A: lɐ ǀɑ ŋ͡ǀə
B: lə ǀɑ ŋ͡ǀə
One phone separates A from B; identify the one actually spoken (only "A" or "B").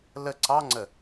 B